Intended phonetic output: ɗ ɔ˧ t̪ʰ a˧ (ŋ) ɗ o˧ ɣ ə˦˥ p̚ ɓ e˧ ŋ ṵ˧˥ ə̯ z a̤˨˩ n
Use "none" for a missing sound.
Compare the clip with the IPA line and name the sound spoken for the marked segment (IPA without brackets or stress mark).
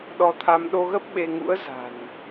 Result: m